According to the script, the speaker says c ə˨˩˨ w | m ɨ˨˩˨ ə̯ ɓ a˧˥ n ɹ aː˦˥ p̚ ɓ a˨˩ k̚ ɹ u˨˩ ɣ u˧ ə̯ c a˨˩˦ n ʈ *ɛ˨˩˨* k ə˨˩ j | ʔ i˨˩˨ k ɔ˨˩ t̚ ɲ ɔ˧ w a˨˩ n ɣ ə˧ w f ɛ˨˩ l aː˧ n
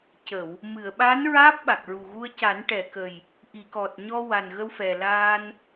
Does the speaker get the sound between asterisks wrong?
no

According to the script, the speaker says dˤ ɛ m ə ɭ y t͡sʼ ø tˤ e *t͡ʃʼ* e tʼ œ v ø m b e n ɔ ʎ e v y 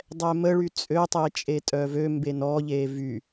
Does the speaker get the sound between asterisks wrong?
no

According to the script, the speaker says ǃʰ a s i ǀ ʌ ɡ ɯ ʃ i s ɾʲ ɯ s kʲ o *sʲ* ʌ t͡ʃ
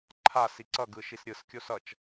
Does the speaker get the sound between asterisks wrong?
yes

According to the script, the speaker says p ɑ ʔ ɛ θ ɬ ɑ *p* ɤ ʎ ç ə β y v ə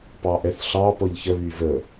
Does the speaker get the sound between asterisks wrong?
no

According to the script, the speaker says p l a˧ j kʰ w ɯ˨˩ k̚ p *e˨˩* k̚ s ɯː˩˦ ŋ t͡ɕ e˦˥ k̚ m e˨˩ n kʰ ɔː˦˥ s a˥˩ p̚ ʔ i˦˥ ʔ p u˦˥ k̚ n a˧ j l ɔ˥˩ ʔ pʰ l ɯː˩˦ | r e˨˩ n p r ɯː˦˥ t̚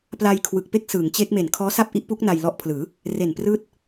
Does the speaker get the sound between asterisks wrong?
yes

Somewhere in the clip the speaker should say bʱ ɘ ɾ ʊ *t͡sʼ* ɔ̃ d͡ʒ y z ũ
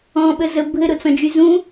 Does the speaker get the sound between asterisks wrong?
yes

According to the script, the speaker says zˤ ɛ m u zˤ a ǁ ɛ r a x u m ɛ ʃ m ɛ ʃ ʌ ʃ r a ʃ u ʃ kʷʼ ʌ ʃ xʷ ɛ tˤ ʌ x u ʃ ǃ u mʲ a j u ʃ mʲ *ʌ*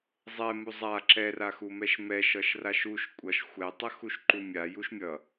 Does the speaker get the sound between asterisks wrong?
no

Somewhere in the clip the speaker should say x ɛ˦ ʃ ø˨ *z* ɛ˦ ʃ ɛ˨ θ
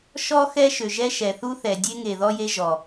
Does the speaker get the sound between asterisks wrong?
yes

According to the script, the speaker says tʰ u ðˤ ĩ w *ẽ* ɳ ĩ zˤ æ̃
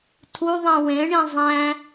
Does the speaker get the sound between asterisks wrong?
no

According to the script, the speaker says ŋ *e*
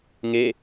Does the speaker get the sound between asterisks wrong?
no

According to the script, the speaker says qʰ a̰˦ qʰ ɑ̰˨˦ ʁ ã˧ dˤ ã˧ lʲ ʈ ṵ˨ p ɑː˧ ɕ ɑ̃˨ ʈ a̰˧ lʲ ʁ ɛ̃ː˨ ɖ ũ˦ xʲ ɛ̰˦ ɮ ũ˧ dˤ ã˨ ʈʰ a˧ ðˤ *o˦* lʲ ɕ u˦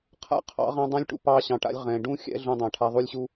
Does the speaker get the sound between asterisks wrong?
yes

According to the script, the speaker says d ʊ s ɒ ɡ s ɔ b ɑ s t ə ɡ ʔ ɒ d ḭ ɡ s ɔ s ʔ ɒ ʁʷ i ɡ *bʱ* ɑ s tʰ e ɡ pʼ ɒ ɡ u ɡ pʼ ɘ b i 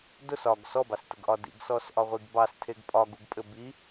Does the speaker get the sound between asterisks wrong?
yes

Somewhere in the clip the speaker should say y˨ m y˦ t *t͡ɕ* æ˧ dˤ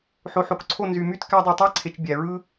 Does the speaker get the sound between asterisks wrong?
yes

